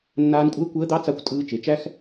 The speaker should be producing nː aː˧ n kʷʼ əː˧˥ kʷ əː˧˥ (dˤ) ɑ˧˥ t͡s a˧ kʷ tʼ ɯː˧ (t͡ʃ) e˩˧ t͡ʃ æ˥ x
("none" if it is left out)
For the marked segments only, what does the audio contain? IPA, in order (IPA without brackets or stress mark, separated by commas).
d̪, t͡ʃ